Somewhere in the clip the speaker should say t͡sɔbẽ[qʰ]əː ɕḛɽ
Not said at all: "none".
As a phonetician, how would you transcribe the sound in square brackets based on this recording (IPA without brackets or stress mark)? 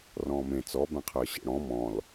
qʰ